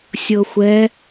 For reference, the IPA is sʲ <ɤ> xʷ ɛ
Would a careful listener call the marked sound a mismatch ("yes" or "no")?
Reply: no